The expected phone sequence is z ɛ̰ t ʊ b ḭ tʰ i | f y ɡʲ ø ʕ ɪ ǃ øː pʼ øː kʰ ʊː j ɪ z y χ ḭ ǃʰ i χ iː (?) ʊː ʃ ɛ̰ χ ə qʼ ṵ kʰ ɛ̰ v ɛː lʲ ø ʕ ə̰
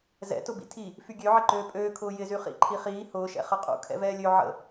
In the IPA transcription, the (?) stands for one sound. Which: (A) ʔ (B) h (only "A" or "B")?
B